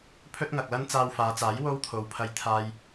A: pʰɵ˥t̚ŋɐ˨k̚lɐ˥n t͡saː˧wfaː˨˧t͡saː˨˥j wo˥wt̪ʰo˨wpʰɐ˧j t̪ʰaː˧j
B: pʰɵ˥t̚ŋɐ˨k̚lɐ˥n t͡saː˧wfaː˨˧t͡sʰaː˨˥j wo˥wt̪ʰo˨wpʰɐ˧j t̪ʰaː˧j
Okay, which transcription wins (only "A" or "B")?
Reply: A